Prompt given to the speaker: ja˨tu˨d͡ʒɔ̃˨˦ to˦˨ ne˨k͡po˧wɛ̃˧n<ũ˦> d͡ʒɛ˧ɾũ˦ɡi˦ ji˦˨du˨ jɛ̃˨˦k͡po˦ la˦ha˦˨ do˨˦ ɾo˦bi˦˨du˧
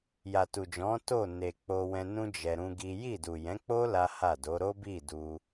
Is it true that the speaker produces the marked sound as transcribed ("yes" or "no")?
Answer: yes